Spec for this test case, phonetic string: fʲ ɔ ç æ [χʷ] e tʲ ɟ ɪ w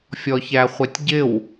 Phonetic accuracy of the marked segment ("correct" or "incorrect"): correct